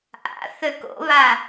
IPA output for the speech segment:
ʔa̰ θøko̰βa

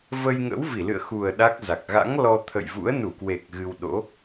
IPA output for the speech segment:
və˧j ŋə̰˧˥wvi˧˩lɨ̰˧˨ə̯ xu˨˩ə̯ ɗa˦˥k̚za˨˩k̚ ɣa̰˧˥ŋlɔ˧ t̪ʰə̰˧˨jvṵ˧˥ə̯nu˧˩kwe˨˩k̚ ɣɨ˧wɗo̰˧˥

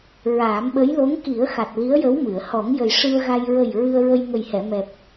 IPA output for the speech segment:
ɹaː˨˩˦mɓə˧˥j lo˧˥ŋ ki˨˩˦ə̯xa˨˩t̚ li˧˥ə̯jə˧˥wmɨ˨˩˨ə̯ hɔ˨˩˦ŋjə˨˩j ʂɨ˧ə̯ɣa˧j ɹə˨˩j ɹɨ˧ə̯ɹə˧j ŋə˨˩jhɛ˨˩˨mɛ˨˩p̚

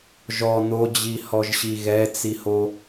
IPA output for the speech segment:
ʒɔ n̪od͡ʑihɔʒɕi ɣɛt͡siho

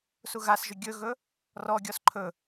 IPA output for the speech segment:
suɣasʒɵ ɡʲɵɣɵ | rɔɡʲɔs ǃʰɵ

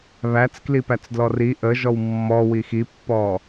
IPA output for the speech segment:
βæt͡sklipæt͡sdlɔ ri ʔəʒɔw mːɔwi xipːɔ

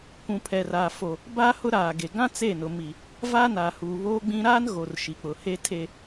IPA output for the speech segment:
kʷũ˨pʰɛ˨raː˨fo˨ | ba˦ hʊ˦ɾaː˨ɡe˨ ɡã˦ t͡se˦˨nʊ˨ mi˨ | va˦naː˨huː˨ βoː˦ɡ͡bĩ˦ ɾaː˦nɣo˨r ʃi˨k͡pʊ˨he˦ tʰe˦

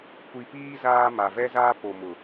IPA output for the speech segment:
kʷi˨piː˦ zaː˦ma˨ vɛ˦zaː˦po˨mʊ˨

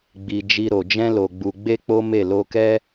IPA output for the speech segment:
ɡ͡bi˨ d͡ʒi˧ɾo˨ d͡ʒɛ̃˧lo˨ɡ͡bu˨ ɡ͡be˧ k͡po˦me˦˨ lo˧kɛ˦

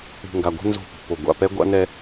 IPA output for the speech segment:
ṳ˨ŋɡa˨ɡʷɛ̤˦ nzo̤˦˨pṳ˨ po˨ ɡʷa̰˨pɛ˦ɡʷa̰˦ nɛ˦

